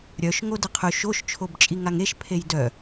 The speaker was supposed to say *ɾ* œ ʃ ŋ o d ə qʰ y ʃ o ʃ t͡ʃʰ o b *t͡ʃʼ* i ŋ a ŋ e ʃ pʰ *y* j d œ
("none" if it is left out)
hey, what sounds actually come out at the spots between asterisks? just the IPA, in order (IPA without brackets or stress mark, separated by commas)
ɾʲ, t͡ʃʼ, e